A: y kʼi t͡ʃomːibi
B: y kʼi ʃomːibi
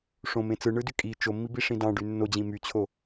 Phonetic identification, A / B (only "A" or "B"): A